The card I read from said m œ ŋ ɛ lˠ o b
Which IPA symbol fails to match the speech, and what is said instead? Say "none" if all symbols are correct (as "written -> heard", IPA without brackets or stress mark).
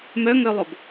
ɛ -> œ